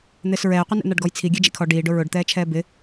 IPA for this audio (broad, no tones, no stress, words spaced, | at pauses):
n̪ɪːsɹɛːqʷɪ nɛ̰n̪aɖɡɔjt͡sʰi ɡʲɛd͡ʒḭkʰɔ ɖiːɖʊ ɹʊɖt̪ɛːt͡ʃʰɛː bɪ